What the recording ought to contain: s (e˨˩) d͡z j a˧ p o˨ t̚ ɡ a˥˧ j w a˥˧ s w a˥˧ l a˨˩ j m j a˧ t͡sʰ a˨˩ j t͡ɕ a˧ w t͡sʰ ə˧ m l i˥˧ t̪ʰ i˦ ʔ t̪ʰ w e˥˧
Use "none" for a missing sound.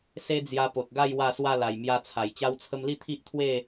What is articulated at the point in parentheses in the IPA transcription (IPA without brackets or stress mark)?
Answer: e˦